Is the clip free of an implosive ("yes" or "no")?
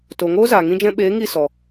no